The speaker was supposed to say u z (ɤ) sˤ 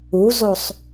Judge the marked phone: incorrect: o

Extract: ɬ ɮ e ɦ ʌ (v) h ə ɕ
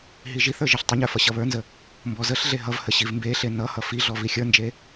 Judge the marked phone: correct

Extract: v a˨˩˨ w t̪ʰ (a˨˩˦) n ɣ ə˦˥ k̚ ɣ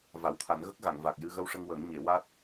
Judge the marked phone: correct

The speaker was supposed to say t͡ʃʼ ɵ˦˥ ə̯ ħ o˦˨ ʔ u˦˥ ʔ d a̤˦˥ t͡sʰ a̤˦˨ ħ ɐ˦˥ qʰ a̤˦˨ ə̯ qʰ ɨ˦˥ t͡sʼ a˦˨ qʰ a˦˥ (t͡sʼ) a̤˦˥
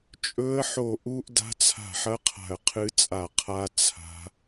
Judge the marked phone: incorrect: t͡sʰ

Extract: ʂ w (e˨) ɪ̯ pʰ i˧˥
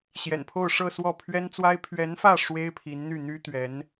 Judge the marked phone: incorrect: e˥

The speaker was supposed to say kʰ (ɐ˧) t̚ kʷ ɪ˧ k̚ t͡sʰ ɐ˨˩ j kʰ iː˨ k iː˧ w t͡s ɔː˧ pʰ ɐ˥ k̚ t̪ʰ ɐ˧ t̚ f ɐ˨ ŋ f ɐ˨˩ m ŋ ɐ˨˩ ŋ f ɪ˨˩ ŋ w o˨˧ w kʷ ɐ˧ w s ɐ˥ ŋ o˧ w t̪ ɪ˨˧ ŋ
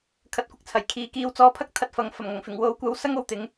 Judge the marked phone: correct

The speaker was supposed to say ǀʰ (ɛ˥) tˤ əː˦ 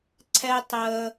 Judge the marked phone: correct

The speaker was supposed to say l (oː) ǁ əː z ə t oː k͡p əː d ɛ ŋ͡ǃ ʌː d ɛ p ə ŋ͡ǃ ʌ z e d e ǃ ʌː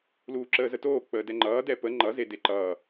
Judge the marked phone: incorrect: uː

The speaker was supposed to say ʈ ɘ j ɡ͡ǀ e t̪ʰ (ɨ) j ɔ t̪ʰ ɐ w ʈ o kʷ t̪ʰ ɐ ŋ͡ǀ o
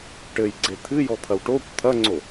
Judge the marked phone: correct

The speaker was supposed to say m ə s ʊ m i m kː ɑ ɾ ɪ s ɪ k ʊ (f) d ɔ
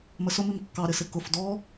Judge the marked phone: correct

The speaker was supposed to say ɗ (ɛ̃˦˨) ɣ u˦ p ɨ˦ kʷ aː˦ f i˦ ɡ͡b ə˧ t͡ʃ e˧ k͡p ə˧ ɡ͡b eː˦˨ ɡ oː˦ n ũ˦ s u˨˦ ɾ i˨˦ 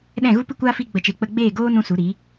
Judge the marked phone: correct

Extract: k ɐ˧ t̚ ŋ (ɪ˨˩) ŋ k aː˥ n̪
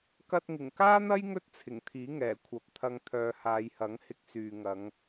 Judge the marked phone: correct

